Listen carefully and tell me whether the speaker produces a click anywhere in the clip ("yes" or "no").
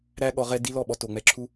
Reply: yes